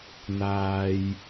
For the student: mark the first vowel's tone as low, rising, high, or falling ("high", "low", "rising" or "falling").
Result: low